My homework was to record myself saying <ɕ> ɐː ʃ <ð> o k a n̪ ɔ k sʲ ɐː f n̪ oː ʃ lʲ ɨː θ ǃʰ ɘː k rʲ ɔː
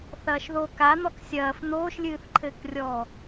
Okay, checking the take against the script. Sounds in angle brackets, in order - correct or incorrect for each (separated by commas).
incorrect, correct